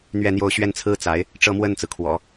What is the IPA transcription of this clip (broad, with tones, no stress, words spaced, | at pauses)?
n̪ɥɛ˥˧n̪jo˥˧ʊ̯ ɕɥɛ˥˩nt͡sʰɹ̩˥ t͡sa˧˥ɪ̯ | ʈ͡ʂɤ˥˧mwə˥˩nt͡sɹ̩˩kʰwɔ̰˨˩˦